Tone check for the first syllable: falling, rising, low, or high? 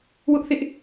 high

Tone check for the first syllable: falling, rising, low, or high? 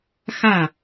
falling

